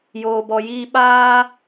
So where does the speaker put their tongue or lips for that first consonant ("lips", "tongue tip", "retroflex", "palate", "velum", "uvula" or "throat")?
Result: palate